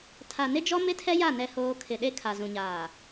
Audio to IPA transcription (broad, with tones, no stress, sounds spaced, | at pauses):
tʰ a˨ n ɪ˦ d͡ʒ ɔ˦ m ɪ˦ tʰ ɛ˦ j a˦˨ n ɛ˦ h oː˦ kʰ ɪ˨ ɗ e˦ kʰ a˨ z ũ˨ ɲ aː˨